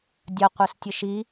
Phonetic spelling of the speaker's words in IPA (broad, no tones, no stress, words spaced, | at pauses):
dʲɐ qʷœstʲəʃi